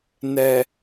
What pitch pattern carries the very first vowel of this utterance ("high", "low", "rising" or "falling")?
low